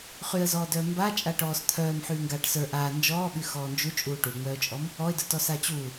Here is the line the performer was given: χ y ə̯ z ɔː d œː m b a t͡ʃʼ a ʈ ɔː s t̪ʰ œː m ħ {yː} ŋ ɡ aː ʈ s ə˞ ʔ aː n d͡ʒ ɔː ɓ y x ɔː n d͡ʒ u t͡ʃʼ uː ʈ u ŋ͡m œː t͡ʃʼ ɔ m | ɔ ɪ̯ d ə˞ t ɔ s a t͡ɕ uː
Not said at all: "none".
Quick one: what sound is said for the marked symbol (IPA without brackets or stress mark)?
yː